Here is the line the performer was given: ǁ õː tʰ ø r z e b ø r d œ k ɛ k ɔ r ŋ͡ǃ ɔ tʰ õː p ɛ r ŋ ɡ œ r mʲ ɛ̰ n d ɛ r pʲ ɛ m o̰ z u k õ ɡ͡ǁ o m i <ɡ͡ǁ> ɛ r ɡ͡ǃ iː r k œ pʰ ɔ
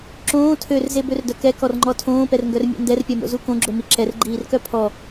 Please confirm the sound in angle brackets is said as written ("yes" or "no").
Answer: no